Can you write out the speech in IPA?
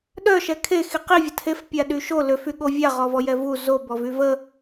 ɗ œ ʃ ɛ kʰ e x i q i vʲ ə tʰ e f pʲ a ɗ y ʃ o l ø f y ɠ o vʲ a ʁ ɔ v ɔ j ɛ v u z o b ɔ v y v ə

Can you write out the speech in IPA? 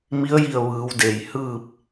m i˧˥ ə̯ j i˧˩ ə̯ ʋ ɯː˩˧ w d e˩ j h ɯː˥˨ p̚

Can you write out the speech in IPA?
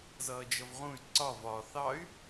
z ʌː d͡ʒ ʌ v ʁ ũ y̯ ǀ ɒ v ɒ θ ɑ y̯

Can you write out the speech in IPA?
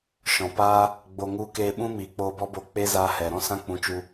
ʃ ɔ̃˨ p aː˦ | ɡ͡b o˧ ŋ u˦ k eː˧ ɓ ũ˦ m iː˨ k͡p oː˧ b ɔ˦ b o˦˨ k͡p e˦ z aː˧ h ɛ˨ ɾ ɔ̃˦ s ã˦ k͡p ũ˨˦ t͡ʃ u˧

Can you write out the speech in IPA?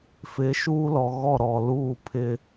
f ɪ˨˦ ʃ uː˦ l ɔ˨ ɣ ɔ˦˨ ɾ ɔ˨ l uː˦˨ pʰ ɪ˦

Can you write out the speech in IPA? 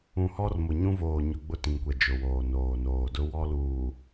ũ˨ h ɔ˦ r m ʊ˨ ɲ ũ˦ v oː˨ ɲ ʊ˨ ɡ͡b ʊ˦˨ t ĩ˨ ŋ kʷ ɛ˨ d͡ʒ ʊ˨ w oː˨ n oː˨ n oː˨ d ʊ˦ w ɔ˦ l uː˨

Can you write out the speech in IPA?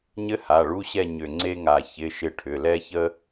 ɲ ɘ˥ h a˩˧˩ ɭ u˧˥˧ ɕ ɛ˥˨ ɲ ʏ˧˩ ŋ͡ǀ e˥ ŋ a˧˩ ç ɪ˧˥˧ ʃ ɪ˥˨ ʈʰ ʏ˩˧˩ l ɛ˥ ç ə˥

